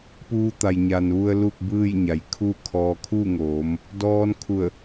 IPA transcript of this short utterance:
p uː˧ t̪ a˩ j ɲ a˩ n ʋ u˧ ə̯ l u˥˨ k̚ b ɯː˥˨ j ɲ a˩˧ j kʰ u˥˨ kʰ ɔː˧ kʰ u˥˨ ŋ oː˩˧ m | d ɔː˧ n kʰ u˧˩ ə̯

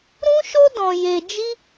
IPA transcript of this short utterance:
ɾ ũ˦ ʃ o˦ d ɔ̃˧ j e˧ d͡ʒ i˦

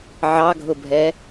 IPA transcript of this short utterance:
ʕ ɑ ɡʱ ʊ bʱ ɛ

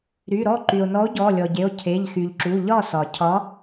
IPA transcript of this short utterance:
ɾ y˩˧˩ ɾ ɔ˥˩ ǃ y˩ o̯ n ɔ˨˥ o̯ ɟ ɔ˩˧˩ lʲ ɔ˩ ɟ e˩˧˩ o̯ cʰ e˩˧˩ ʎ x y˩ ʎ ǁ u˩˧˩ ʎ ɒ˥˩ s ɒ˩ cʰ ɒ˨˥

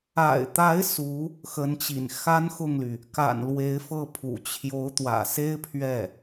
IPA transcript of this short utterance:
a̰˨˩ ɪ̯ t̪ a˧˥ ɪ̯ s u˧˥ | x ə˧˥ n t͡ɕ ḭ˨˩ n x a˥ n x ʊ˥˩ ŋ l y˩ | k a̰˨˩ n l w e˧˥ ɪ̯ f ɤ˥˩ pʰ ṵ˨˩ t͡ɕʰ j o˧˥ ʊ̯ t̪ w ä̰˨˩ s e˥ ɪ̯ pʰ ɥ ɛ˥˩

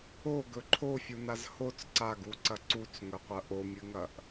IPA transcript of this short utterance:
o ɡ ɵ ǃʰ o fʲ u n a z h o t͡s ǀ a ɡ u ǀ ɐ ǀ u t͡s ŋ ɵ qʷ ɐ ʔ o mʲ ɨ ŋ ɐ ʔ

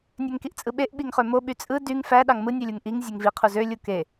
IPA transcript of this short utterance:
nʲ ø ŋ k i ʔ t͡sʼ ɯ ɓ e ʔ ɓ i ŋ χ ø m o ɓ y t͡sʼ ɯ d y ŋ f æ ɗ ɑ ŋ m ɯ nʲ ø lʲ u ŋ ʔ i ŋ zʲ e ŋ v i qʰ u z ø lʲ u k e

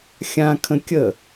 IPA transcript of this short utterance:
xʲ ã kʰ ə̃ kʲ ə

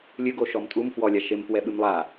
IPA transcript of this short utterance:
lʲ ɨ ɡ o ʃ ɔ m tʼ u m f w ɔ lʲ a ʃ e m f w ɛ ɓ ɨ m lˠ a

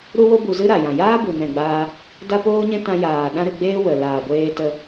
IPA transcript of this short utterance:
ɾ u˦ w o˦ b u˧ z ɨ˦ ɾ a˨ j ã˨ j aː˦ b u˨ n ɛ̃˨ ɡ͡b aː˧ | d a˦ p oː˦ ɲ ɛ̃˦ t ã˧ j aː˨ ɗ ã˦ ɾ ɨ˧ ɡ͡b eː˦ w ə˨ l aː˨ ɡʷ eː˧ t ə˧

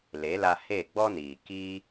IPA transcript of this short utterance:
l e˨˦ l a˧ h e˦˨ ɡ͡b ɔ˦ n iː˨ k iː˦

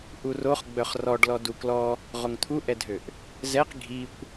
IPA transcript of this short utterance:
ʔ u r o χ ɡ͡b œ χ r ɔ ɖ l ɔ d u k l ɔ | ʁ o ŋ t̪ʰ u ʔ ɛ dʱ ø ʔ | z ɛ q ɡʱ i kʷ

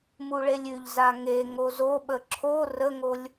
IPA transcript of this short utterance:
m u ɭ e lʲ ʉ ʎ z a ŋ e ŋ o z o ɓ ə ǁʰ o r ə ŋ o lʲ

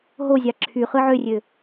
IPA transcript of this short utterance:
ɦ o zʲ ɑ ǁʰ y χ ɯ ʕ ø rʲ ø

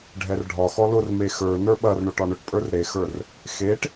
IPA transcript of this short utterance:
ɖʱ ɛ r ɖʱ ɒ x ɔ l ʊ r m e x ə˞ n ə˞ ɓ ɐ r ɳ o ʈ ɒ ɳ ʊ ʈ pʼ ə˞ r ɾ e x ə˞ r | x e ʈ

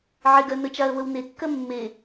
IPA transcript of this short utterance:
ʕ ɪ ɡ ɜ n ə t͡ʃ a ə̯ β ə w n e kː ɜ mː e

